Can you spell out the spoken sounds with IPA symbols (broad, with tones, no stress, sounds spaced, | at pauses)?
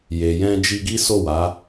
j e˨ j ɛ̃˧ d͡ʒ i˧ ɡ i˦ s o˦˨ w a˨˦